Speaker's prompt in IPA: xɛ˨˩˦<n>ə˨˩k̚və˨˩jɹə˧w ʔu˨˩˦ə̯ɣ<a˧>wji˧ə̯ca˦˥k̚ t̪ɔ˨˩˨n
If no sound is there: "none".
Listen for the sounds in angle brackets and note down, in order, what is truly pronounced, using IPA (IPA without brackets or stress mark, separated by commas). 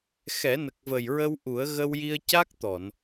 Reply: n, ə˧